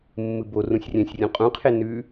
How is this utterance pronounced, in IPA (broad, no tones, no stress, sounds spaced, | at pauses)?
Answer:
mː ɨ b o r ũ sʲ rʲ ɛ̃ sʲ rʲ ũ qʼ ũ qʰ e n ʉ